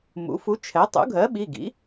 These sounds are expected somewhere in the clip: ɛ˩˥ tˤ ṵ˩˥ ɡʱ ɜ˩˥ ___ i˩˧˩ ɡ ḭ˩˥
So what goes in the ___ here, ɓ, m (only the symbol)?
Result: ɓ